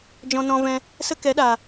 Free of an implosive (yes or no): no